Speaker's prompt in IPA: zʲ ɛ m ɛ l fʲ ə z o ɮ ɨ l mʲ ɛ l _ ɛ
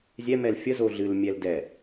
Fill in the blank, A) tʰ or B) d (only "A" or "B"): B